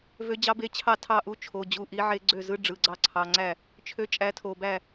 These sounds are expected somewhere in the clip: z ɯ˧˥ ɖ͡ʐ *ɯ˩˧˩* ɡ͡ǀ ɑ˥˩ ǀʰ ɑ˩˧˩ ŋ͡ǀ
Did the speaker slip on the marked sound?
no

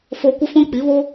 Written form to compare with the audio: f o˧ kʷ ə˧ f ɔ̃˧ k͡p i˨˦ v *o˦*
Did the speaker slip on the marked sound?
no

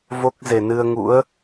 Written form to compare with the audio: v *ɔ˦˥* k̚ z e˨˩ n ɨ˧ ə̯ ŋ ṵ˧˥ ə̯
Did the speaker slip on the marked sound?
yes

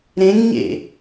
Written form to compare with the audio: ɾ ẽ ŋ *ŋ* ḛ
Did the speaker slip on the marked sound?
yes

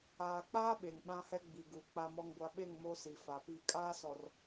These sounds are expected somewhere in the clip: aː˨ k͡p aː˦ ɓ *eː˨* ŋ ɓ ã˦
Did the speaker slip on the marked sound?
yes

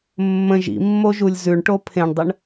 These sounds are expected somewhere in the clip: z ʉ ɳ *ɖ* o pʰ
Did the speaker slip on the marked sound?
yes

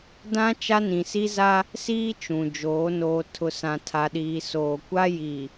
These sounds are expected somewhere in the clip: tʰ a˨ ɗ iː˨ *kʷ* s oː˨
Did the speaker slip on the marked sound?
yes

